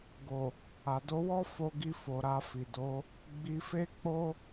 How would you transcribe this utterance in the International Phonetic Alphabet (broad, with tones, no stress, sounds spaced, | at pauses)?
ɡ o˨ | a˨ d o˧ w ɔ˦ f o˧ ɡ i˧ f o˨ ɾ a˧ f i˨ d o˨˦ | ɡ͡b i˧ f e˦ k͡p o˦